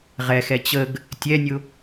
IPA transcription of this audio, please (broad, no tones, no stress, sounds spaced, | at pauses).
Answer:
ʁ ɛ x ɛ t͡ɕ ə ɡ | tʲ ɛ nʲ ʊ